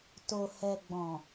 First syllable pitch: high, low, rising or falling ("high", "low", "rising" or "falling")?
low